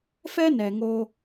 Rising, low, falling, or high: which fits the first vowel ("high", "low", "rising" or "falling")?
high